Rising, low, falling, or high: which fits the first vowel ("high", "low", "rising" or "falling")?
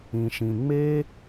low